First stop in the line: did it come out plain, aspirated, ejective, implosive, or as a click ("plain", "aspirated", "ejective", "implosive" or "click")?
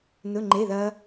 click